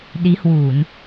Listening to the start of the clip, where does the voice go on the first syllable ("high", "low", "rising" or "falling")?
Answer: rising